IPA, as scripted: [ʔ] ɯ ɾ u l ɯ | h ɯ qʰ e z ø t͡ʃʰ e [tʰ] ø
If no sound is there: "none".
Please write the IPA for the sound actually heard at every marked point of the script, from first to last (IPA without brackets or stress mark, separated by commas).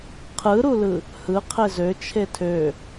qʰ, tʰ